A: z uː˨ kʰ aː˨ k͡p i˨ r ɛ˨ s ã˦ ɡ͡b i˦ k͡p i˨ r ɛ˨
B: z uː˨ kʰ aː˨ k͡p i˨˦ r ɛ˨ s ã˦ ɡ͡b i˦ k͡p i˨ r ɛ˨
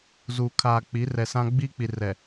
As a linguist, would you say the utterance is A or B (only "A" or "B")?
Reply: B